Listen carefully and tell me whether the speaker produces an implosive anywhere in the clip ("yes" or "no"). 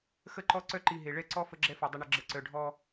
no